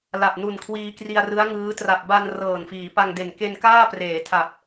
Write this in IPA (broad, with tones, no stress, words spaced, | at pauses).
la˨˩p̚nu˨˩n kʰwiː˧kri˧a̯rɯ˦˥a̯ŋɯː˦˥ tra˨˩p̚ba˧n rɤː˨˩nfiː˩˦ pa˧ŋde˨˩n ke˧nkaː˥˩preː˩˦tʰa˨˩p̚